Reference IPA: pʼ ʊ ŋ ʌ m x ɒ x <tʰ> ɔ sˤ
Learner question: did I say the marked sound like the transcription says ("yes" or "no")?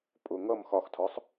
yes